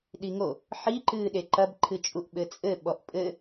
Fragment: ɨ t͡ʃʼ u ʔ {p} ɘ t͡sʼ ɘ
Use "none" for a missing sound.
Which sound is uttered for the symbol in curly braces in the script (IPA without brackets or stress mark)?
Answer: ɓ